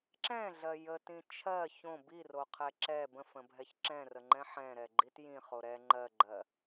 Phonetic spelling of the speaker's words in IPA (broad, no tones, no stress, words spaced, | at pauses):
ǁɛ̃ɮɜ jətĩ t͡ʃʰɜ çõ biroqʰɛ ǁɛ bə̃fə̃bʱɛç ǁɛ̃rəŋ͡ǃɛ̃ ħɛ̃ɾɛɡ͡ǃit jĩχo ɾɛ ŋ͡ǃɜɡ͡ǃɜ